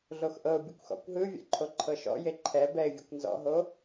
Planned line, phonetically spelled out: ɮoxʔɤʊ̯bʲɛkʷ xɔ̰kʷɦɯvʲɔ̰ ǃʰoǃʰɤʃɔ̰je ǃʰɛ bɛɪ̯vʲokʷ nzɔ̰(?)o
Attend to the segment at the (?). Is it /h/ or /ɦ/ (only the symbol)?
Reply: ɦ